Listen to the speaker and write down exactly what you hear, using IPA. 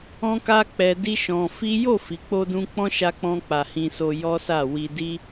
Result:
ɔ̃˦ k a˦ k͡p ɛ˧ d i˦ ʃ ɔ̃˧ f i˦ j o˦˨ f i˨ k͡p o˧ d ũ˧ k͡p ɔ̃˦ ʃ a˧ k͡p ɔ̃˧ k͡p a˨ h ĩ˧ s o˧ j ɔ˦ s a˦˨ w i˧ d i˦

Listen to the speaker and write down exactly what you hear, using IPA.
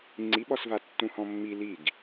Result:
ŋ͡ǀ i ɓ ɔ s v a tː ũ h ɔ̃ mː i l i ɡ

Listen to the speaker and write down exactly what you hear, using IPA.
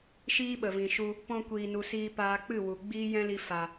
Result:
ʃ iː˦ ɓ ə˨ v ĩ˨ ʃ u˧ | p ɔ̃˧ kʷ iː˨ n u˨ s iː˧ p aː˧ k͡p ɨ˦˨ w u˨ ɡ͡b iː˦ j ɛ̃˦ l i˧ f a˨

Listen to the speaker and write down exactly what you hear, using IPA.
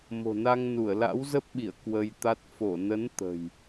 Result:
m o̤˨˩ n a˧ ŋ n u˧˩ ə̯ l a̰˧˥ w z ə˦˥ p̚ ɓ i˧˩ ə̯ k w ə˧ j t̪ a˦˥ t̚ f o˧˩ n ə˨˦ n t̪ ə̤˨˩ j

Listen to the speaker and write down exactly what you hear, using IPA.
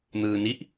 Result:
n̪ ɯː n i ʔ

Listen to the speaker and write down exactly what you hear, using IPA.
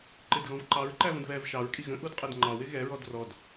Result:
ǃ ɪ d ɣ ɔ̃ v ǃ ɑ ɹ ǃ æ v ə̃ d β ɛː v ʃ ɑ ɹ kʼ i ɣ ə̃ ʔ u d qʼ ɛ d ŋ͡ǃ ɑ w ɪ ɣ ɛ ɹ ɔ d r ɔ d

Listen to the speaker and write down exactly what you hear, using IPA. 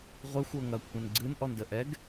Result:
ʁʷ ɛ xʷ ɤ ŋ ɐ kʷʰ ə̃ n ɡ͡ǀ ɨ n ʔ ɔ n d ə ʔ ɛ ɡ

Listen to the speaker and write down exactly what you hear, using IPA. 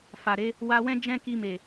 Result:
f a˨ ɾ e˨˦ | w a˧ w ɛ̃˦ d͡ʒ ɛ̃˦ k i˧ m e˨

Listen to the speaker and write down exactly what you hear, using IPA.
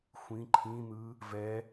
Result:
xʷ ĩ ǃʰ ĩ n̪ ɯ | v ɛ

